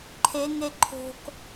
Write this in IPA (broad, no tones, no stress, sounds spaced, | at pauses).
ǃʰ e ŋ e ǃʰ o̤ k